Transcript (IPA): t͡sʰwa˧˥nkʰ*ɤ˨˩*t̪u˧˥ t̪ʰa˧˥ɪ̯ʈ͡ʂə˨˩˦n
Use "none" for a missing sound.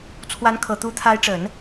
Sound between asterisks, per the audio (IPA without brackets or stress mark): ɤ˨˩